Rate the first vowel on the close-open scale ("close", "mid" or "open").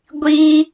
close